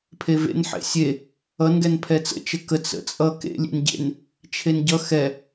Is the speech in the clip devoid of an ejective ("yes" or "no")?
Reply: no